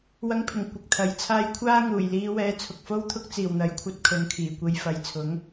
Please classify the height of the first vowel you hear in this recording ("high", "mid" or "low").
low